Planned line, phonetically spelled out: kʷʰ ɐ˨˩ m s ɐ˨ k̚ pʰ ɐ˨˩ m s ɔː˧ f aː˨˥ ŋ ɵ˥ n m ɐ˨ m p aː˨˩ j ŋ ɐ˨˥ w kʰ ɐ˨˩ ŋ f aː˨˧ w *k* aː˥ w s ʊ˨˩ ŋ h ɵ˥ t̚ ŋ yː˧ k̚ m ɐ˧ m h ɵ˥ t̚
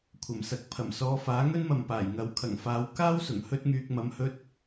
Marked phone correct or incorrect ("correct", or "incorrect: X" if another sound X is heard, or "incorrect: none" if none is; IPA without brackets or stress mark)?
correct